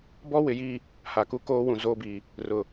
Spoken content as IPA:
b ɔ˦ w ɪ˨ j i˦˨ | h a˨ k u˦ k oː˦ w ũ˨ z oː˦ b iː˨ | r ʊ˨

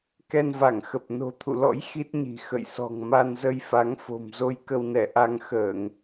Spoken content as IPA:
k ɛ˧ n v a˧˩ ŋ x ə˨˩ p̚ n o̤˨˩ t̪ʰ ṵ˧˨ l ɔ̰˧˥ j x i˦˥ t̚ ɲ i̤˨˩ x ə̰˧˨ j s ɔ̤˨˩ ŋ m a˧ n z ə˧ j f a˨˦ ŋ f o̤˨˩ m z o˧ j k ə˧ w n ɛ˧˩ ʔ a˧ ŋ x əː˧˩˨ ŋ

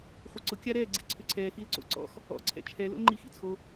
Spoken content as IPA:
χʷ ə ǀ ʊ kʲ a ɾ ɛː ɡ͡ǀ ḭ ǀʰ ʏ ǀʰ ɛː x i l ǀ o̰ ǀ ɔ̰ x | ɔ̰ ǀʰ ɛ̰ t͡ʃʰ ɛ l o̰ l ŋ͡ǃ iː x ḭ t͡sʰ o

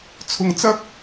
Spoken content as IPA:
t͡sʰ ʊ˧ ŋ t͡s ɐ˥ k̚

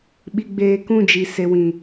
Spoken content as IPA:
ɓ i˨ ɡ͡b eː˨ k ũ˦˨ d͡ʒ i˨ s e˨ w ĩ˨

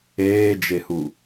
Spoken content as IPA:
eː d͡ʒ e h u

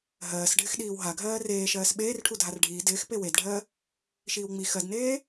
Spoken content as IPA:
ɦ ɜː s ɖʱ ɪ x ɗ iː w ɦ a ɡʱ ɜː r eː ʃ ɜː s ɓ eː r ʈʰ u dʱ a r ɖʱ iː d ɪː x p e w e d ɖʱ ɜ | ʃ iː w ŋ͡m i x ɜ d n eː

